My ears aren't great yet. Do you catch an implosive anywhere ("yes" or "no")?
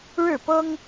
no